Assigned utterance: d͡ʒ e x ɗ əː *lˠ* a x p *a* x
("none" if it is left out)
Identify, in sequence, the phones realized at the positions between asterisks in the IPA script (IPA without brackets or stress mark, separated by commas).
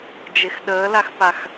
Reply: l, a